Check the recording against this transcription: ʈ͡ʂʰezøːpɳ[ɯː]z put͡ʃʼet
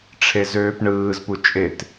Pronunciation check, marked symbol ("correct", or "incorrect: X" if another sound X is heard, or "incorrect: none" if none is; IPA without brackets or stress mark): correct